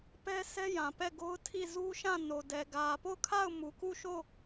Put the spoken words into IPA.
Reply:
p ɛ˦ s ɛ˦ j ã˨ p ɛ˦˨ ɡ o˦ ʊ̯ tʰ i˦˨ z u˦ ʃ ã˦˨ n o˨ d ɛ˨ ɡ ä˨ p o˦˨ ʊ̯ kʰ a˦˨ ʊ̯ m u˨ k u˦˨ ʃ o˦˨

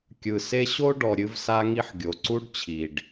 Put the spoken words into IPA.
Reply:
kʲ ɯ˨ s e˦ ɕ o˦ ɖ ɔ˨ ɾʲ ɨ˦ v s a˦ ŋ i˦ ħ ɡʲ o˨ ǀ u˦ ɖ t͡ɕʰ i˨ ɖ

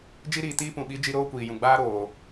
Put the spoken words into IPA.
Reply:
d͡ʒ i˧ ɾ iː˨ t iː˧ p ũ˨ ɓ i˨˦ d͡ʒ i˧ ɾ oː˦ kʷ iː˨ j ũ˨ ɡ͡b aː˦ ɾ oː˨

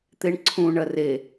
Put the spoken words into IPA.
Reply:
t̪ e ɳ ǀʰ ũ ɳ ɐ r e

